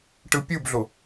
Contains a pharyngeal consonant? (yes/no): no